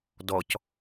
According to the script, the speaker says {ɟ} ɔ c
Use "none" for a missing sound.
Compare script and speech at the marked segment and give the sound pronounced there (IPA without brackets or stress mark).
d